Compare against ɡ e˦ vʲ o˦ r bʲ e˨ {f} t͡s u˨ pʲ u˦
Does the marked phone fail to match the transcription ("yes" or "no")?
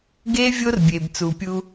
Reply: yes